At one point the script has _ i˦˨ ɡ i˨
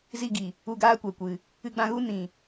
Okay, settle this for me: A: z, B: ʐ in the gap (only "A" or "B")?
A